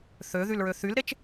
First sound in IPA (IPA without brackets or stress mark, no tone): θ